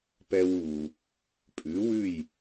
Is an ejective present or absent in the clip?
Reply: present